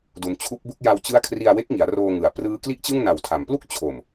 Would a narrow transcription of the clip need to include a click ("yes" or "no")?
no